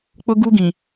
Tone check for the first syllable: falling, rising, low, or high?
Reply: high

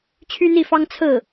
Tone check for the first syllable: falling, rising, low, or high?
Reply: high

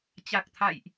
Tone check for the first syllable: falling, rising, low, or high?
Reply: low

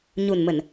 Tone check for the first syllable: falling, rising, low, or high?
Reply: low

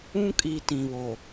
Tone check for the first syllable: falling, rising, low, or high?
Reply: high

